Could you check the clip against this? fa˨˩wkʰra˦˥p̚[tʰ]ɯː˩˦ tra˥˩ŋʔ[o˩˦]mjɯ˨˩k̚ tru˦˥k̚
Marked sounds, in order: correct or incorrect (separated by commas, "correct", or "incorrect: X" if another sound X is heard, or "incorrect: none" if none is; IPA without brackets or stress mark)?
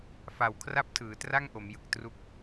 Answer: correct, correct